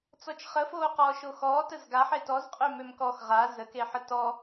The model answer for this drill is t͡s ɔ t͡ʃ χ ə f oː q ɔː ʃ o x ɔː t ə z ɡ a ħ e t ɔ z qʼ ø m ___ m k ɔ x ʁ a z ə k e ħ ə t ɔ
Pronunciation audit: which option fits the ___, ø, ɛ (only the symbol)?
ø